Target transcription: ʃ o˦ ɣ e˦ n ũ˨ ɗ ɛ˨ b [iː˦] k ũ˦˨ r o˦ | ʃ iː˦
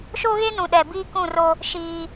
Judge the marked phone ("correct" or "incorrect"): correct